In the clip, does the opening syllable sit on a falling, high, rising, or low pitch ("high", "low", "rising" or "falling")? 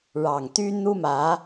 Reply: low